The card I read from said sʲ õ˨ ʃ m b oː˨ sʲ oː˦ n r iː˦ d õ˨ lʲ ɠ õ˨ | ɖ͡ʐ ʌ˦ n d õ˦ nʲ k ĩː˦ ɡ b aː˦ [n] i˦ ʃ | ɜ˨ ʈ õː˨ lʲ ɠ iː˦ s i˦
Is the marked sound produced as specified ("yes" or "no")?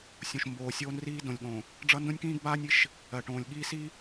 no